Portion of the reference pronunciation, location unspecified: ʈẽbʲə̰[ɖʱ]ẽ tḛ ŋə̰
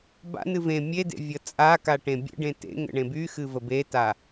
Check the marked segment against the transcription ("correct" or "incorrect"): incorrect